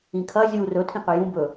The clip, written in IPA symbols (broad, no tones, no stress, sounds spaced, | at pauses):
ĩ kʰ ɐ zʲ u r ɵ tʰ ĩ q ɵ j ũ b ɵ